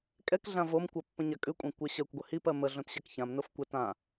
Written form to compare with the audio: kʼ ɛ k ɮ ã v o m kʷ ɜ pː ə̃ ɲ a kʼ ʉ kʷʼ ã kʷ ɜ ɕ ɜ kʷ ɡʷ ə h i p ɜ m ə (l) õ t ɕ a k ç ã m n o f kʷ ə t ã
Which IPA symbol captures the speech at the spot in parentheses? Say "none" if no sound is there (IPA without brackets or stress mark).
ɮ